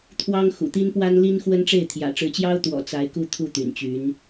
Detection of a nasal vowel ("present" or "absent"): absent